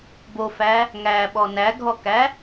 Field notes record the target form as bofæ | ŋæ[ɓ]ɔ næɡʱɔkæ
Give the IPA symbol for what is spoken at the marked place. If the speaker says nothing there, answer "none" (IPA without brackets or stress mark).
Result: ɓ